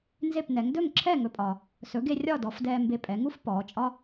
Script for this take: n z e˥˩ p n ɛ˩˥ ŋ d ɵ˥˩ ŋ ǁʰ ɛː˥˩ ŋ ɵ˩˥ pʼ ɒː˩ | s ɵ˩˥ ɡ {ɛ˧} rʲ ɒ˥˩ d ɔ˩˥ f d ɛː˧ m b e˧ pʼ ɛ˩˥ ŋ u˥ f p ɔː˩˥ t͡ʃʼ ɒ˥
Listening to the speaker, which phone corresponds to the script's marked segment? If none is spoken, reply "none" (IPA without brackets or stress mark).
e˧